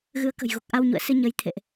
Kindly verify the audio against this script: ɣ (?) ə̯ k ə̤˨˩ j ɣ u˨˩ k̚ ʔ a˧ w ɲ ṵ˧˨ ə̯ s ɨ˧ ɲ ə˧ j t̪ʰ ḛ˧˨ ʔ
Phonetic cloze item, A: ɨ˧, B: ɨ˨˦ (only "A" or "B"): B